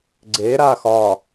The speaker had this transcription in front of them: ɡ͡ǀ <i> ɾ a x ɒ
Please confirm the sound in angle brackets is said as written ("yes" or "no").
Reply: no